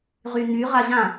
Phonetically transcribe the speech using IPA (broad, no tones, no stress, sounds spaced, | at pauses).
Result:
ʁ y n y ʁ a ʑ ã